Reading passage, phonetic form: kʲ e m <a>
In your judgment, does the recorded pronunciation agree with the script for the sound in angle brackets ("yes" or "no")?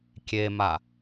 yes